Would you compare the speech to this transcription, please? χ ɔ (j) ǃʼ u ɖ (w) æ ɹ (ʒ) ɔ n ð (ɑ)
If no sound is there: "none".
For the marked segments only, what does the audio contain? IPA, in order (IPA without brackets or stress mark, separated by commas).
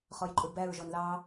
j, b, ʒ, ɑ